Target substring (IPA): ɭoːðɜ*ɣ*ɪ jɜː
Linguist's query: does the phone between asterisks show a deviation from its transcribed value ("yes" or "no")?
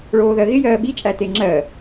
no